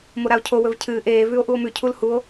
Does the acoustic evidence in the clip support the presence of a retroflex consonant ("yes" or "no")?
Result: no